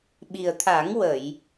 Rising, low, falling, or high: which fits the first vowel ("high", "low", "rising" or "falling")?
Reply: low